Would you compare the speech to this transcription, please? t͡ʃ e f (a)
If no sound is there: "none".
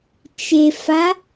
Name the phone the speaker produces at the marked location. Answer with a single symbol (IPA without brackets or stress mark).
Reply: a